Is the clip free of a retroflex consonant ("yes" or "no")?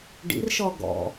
no